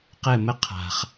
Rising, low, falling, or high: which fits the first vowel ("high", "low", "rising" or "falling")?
falling